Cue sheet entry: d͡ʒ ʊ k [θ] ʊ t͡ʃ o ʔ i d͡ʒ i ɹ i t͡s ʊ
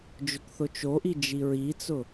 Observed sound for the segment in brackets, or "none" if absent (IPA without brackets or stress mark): θ